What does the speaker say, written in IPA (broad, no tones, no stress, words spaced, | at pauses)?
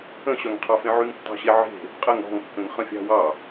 ə̃ɕœŋqʰɑfẽ ʕyŋtːɑ̤ɕeʕe̤ | qʼəŋ ɔ̤ŋkːə̃ŋ χə̃fʲɑ̤wɑ